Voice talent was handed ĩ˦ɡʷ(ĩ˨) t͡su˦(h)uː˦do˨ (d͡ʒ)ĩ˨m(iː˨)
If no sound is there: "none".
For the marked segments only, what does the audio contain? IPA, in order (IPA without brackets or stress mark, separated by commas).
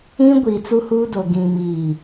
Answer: i˨, h, ɡ, iː˨